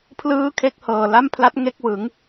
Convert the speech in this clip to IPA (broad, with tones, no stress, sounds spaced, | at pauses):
pʰ l ɯː˥˩ kʰ e˥˩ k̚ h ɤː˨˩ l a˥˩ m pʰ l a˦˥ t̚ ŋ e˥˩ k̚ w ɯ˩˦ ŋ